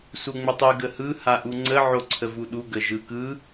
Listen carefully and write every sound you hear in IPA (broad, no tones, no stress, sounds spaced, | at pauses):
s u ŋ͡m ə tˤ ɯ ɡ ə h ɯ h a ʔ u ŋ͡ǀ ə ʕ o ǀʰ ə v u ɗ u ɡ ə ʒ ɯ k ɯ